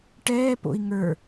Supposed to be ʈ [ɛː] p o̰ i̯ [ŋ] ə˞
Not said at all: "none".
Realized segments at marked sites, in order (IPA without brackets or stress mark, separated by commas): ɛː, ŋ